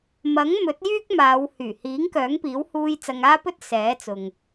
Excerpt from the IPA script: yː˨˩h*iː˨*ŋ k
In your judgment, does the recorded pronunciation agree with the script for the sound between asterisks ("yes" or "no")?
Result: no